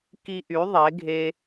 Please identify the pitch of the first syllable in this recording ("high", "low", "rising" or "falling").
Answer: high